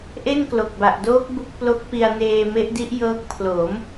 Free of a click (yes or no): yes